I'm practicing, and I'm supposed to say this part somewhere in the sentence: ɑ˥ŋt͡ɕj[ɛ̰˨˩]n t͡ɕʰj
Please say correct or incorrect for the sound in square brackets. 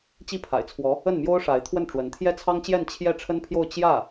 incorrect